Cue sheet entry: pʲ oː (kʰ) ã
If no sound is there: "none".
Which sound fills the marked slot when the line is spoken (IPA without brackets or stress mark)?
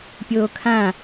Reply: kʰ